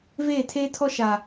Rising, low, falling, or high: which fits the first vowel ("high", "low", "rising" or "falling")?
falling